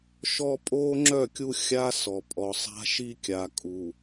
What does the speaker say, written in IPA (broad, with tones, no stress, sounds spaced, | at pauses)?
ʃ ɔ˦ pʼ oː˦ ŋ͡ǁ œ˦˨ kʲ u˦ xʲ a˦ s ɔ˨ pʼ ɔ˨ sˤ a̤˦ ʃ i˦ kʲ a˨ kʼ u˨